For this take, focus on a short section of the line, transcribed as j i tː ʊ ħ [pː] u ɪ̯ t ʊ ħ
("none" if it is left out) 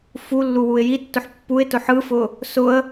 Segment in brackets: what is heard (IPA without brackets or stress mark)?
pː